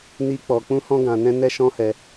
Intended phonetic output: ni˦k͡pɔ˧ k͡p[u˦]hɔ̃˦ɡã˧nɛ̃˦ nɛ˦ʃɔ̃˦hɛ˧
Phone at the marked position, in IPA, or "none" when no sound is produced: ũ˦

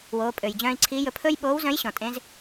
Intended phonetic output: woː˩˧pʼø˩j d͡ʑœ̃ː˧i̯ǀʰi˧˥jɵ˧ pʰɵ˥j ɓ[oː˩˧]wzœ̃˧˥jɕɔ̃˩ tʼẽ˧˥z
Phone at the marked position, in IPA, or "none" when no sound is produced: oː˧˥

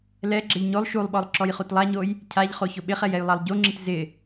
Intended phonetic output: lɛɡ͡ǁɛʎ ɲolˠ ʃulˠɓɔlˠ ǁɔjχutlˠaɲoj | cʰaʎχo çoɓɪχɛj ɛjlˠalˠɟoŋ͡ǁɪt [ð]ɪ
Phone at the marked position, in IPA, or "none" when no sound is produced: z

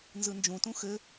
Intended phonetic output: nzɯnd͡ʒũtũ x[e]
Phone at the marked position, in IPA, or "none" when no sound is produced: ɘ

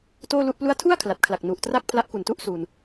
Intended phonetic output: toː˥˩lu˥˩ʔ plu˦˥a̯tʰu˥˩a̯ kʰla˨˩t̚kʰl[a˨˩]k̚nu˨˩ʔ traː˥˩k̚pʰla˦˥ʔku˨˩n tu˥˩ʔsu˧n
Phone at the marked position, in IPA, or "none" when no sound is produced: a˨˩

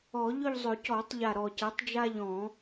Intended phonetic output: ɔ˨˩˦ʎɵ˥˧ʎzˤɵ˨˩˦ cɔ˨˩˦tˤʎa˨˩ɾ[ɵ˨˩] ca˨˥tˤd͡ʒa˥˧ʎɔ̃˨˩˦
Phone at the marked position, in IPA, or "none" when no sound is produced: ɔ˨˩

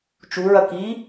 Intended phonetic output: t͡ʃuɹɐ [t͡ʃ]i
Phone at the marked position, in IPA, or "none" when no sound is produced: k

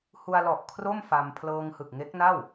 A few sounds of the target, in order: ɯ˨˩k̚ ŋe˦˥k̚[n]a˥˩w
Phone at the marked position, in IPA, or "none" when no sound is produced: n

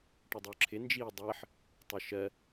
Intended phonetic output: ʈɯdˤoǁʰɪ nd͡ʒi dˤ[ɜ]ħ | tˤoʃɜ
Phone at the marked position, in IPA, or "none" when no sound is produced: ɜ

